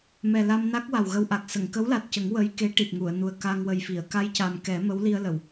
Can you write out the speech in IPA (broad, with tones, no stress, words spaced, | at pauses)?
mɛ˨˩la˧mna˦˥k̚ wa˨˩wɣə˧wʔa˨˩k̚ sə˨˩˨ŋkə˧˥wla˨˩t̚cə˨˩˦ŋ wə˧˥j ke˧˥ ʈi˨˩p̚ŋu˨˩˨ə̯nu˨˩ə̯ ka˧ŋwə˨˩jfi˨˩˨ə̯ ka˧jca˨˩mkɛ˨˩˦ mə˧˥wli˧ə̯lə˨˩˨w